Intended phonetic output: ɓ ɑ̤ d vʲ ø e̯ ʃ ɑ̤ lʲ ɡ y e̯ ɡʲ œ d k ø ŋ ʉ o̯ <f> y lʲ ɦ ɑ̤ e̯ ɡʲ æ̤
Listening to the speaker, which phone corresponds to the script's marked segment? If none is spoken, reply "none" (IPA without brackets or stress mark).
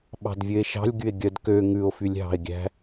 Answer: f